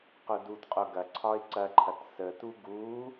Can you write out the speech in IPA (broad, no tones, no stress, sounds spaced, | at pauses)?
q u d u t qʼ o ɡ ɐ ǀʰ ɒ ɪ̯ ǀ ɐ ǃʰ ɐ t s ə t u ɡ u